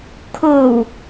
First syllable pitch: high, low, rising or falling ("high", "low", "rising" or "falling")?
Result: low